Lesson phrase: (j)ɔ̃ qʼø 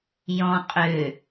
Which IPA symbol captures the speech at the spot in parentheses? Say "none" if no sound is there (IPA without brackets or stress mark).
j